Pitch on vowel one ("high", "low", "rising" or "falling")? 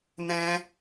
high